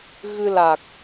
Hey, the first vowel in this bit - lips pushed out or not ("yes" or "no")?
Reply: no